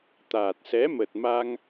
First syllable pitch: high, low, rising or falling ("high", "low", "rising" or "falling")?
low